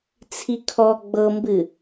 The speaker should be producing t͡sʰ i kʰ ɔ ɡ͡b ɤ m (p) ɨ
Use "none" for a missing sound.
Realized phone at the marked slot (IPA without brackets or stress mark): b